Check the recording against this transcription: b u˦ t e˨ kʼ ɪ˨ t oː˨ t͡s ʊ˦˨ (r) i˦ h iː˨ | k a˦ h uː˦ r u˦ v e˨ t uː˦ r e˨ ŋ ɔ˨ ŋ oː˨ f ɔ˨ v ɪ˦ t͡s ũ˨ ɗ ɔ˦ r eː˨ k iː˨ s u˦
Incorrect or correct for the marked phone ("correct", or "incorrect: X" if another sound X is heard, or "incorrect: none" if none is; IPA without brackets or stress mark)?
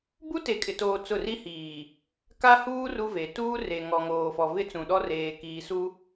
correct